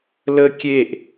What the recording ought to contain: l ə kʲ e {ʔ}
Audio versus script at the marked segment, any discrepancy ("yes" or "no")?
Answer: no